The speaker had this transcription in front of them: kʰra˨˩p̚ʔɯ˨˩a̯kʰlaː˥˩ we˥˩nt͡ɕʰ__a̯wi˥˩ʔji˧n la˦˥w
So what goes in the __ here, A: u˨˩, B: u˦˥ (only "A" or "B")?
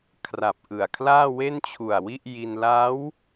A